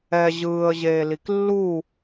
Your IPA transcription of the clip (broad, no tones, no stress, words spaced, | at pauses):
ɛ ʑɯːə̯ʑeːlik lːu